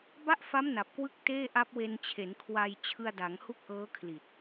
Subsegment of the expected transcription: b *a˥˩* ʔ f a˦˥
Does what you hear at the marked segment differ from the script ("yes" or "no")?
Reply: no